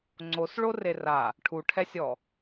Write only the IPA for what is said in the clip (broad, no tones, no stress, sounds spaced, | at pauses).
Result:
ŋ͡ǀ o s ɭ o r e r a | ʈʰ u ʈʰ ɛ sʲ ɔ